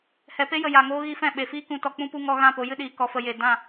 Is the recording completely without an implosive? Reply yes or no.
no